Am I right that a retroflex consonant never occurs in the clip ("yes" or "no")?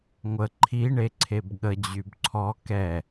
no